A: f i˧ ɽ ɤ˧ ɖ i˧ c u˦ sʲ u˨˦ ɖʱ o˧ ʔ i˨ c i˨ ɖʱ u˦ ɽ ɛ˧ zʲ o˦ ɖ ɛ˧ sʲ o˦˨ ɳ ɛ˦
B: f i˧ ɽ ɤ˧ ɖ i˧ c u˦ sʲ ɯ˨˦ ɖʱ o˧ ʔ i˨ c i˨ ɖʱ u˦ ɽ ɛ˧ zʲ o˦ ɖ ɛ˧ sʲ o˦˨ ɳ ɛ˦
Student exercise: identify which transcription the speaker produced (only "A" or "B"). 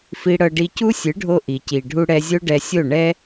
B